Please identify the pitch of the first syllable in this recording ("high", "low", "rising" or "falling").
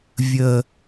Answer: low